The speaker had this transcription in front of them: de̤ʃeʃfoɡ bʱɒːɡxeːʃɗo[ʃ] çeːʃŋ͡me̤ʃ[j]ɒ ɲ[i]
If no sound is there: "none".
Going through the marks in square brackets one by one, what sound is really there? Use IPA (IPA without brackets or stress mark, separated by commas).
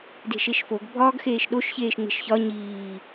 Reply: ʃ, ç, iː